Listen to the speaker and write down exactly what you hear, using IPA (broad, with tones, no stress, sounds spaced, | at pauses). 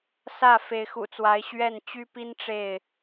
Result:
s ä˥˨ f e˨˦ ɪ̯ x ṵ˨˩ t͡s w a˨˦ ɪ̯ ɕ ɥ ɛ˥˨ n t͡ɕ y˦ p i˦ n ʈ͡ʂ e˥˨ ɪ̯